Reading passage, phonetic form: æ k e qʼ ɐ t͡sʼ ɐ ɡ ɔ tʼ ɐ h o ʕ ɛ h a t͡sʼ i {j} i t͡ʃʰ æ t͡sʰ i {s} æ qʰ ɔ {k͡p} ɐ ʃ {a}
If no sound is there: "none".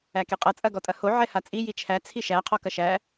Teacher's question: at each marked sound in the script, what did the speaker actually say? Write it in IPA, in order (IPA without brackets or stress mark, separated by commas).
j, ʃ, k, æ